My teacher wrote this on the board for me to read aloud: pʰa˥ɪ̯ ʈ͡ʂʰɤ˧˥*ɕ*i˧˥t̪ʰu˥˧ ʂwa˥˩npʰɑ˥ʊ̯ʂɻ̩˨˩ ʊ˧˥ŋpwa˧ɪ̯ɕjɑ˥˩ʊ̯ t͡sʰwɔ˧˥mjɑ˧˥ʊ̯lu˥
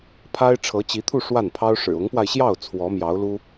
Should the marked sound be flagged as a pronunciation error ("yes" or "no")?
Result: yes